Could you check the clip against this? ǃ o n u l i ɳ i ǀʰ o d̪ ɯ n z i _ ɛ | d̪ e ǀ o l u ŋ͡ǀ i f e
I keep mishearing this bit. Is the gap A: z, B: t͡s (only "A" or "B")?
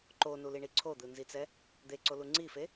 B